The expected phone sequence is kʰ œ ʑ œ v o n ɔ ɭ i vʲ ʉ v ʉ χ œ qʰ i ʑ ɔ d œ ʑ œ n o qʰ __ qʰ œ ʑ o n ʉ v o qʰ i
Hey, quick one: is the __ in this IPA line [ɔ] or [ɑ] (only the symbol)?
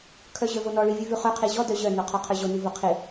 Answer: ɔ